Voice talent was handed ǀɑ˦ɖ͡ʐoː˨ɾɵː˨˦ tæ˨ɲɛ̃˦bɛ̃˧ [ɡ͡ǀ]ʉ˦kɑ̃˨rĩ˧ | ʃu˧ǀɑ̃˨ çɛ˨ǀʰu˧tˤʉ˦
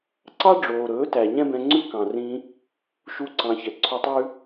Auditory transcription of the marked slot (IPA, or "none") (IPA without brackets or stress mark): ŋ͡ǀ